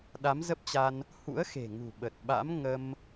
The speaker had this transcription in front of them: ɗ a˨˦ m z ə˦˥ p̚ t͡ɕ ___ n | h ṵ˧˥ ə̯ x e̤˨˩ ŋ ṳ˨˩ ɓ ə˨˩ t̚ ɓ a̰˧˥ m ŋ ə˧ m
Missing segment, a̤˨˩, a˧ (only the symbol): a˧